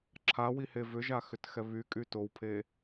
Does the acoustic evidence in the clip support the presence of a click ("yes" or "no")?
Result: yes